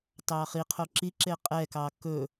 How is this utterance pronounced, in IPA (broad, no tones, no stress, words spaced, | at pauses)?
tɑχiqʰo ǁiǁe qʼɛkɑ kɵ